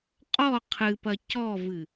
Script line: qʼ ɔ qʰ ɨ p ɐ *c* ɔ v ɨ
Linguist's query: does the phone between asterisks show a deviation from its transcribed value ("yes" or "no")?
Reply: no